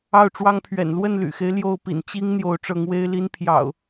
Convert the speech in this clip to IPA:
ɑ˥˨ʊ̯ʈ͡ʂwɑ˦ŋpʰɥɛ̰˨˩n lwə˥˨nly̰˨˩xe˦ɪ̯ ljo˥˨ʊ̯ pḭ˨˩n t͡ɕi˦ŋ n̪jo˨˦ʊ̯ʈ͡ʂɤ˨˦ŋwe˦ɪ̯li˦n pʰjɑ̰˨˩ʊ̯

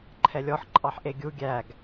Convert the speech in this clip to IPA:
ǃʰɛlʲɔħ ǃʼɑħʔeɡʲu ɡʲæɡ

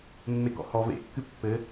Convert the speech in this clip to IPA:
mːekɔ̰hɔ vḛkːɨ pːɘ

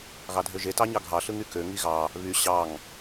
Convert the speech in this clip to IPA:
ɣɑdʱøʒe tɑɲɑɡʱɑ ɬɯŋykø ŋiɣɑ | βy ɕɑŋ

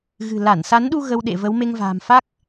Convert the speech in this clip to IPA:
ɣɨ̤˨˩la˧˩nsa˨˦nɗu˧ ɣə˧wɗḛ˧˨ və˨˦w me˧ŋva̤ː˨˩mfa˦˥k̚

